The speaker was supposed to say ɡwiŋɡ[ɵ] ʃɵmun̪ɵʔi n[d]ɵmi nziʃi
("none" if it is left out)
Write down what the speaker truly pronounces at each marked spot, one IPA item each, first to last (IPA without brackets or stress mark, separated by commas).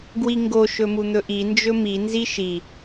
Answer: o, d͡ʒ